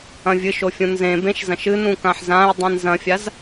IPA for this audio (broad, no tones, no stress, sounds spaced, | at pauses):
ɐ̃ vʲ ɨ ʃ o fʲ ũ n z ẽ b ẽ ʃ z ɐ̃ ʃ ɨ n ũ k ã ħ z ã ɪ̯ dˤ ĩ n z ɐ̃ fʲ a z